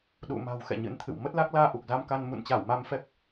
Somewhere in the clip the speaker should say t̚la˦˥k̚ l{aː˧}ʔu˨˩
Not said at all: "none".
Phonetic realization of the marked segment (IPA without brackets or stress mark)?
aː˧